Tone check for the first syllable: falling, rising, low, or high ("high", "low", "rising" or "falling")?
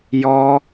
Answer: high